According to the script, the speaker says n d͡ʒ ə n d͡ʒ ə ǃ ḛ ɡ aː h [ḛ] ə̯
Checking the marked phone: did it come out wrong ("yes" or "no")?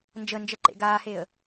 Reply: yes